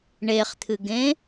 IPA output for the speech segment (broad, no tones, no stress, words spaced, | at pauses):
ɳeχt̪ʰɨɡẽ